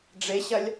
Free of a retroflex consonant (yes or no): no